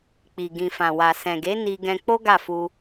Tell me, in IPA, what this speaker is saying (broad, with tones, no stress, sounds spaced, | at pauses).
k͡p i˨ ɡ ĩ˨ f ã˨ w a˨ s ɛ̃˨ ɡ e˨˦ n i˧ ɡ ɛ̃˧ k͡p o˦ ɡ a˦˨ f u˧